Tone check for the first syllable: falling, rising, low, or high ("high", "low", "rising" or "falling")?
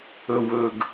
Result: low